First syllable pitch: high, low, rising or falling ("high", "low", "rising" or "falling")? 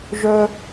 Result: high